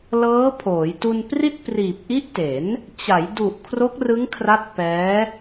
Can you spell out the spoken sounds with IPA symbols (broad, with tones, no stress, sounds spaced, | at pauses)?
l ɤː˦˥ pʰ oː˩˦ j t u˧ n p r i˥˩ t̚ p r iː˨˩ p̚ ʔ i˦˥ ʔ t e˩˦ n | t͡ɕ a˩˦ j d u˨˩ ʔ kʰ r o˦˥ k̚ r ɯ˦˥ ŋ kʰ r a˦˥ t̚ p ɛː˦˥